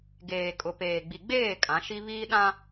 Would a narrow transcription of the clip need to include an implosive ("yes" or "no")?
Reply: yes